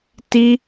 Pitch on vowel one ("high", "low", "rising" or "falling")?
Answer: high